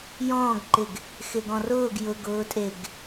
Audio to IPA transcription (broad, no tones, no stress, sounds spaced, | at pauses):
j ɔ̃ː ɡ ǃ ɪ ɡ | x ɪ ɡ ɔ̃ r ʊː ɡ j ʊ ɡ ʊː tʼ e ɡ